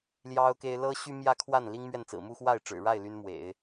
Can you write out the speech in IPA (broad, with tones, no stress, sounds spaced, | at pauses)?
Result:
l j ɑ˥ ʊ̯ k e˥ ɪ̯ l ɤ˥ ɕ y˥ m j ä˥ kʰ w a˥˩ n l i˥ ŋ m ɥ ɛ˥˩ n t͡s ɹ̩˨˩ m u˥˧ x w a˥˩ ɪ̯ ʈ͡ʂ ɻ̩˨˩ ɻ a˥˩ ɪ̯ l y˥ n m w ḛ˨˩˦ ɪ̯